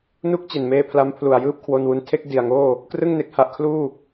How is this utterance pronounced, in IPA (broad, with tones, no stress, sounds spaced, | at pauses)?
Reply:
n u˥˩ k̚ t͡ɕ e˨˩ n m eː˧ pʰ l a˦˥ m pʰ l u˨˩ a̯ j ɯː˥˩ p̚ kʰ w o˧ n w u˧ n tʰ e˥˩ k̚ d i˨˩ a̯ ŋ oː˥˩ | k r ɯ˥˩ ŋ n e˨˩ k̚ h a˦˥ ʔ kʰ l uː˥˩